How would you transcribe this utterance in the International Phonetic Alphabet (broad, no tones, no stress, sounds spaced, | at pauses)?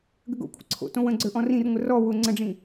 ɡ ə ɡ o̰ kʷʰ ə̰ ǀʰ o̰ t õ w ə̃ ɡ͡ǀ ə˞ ʔ ɔ̃ r ĩ r ŋʷ ə r ɔ w ʊ ŋ͡ǀ ə̃ ɖ͡ʐ ĩ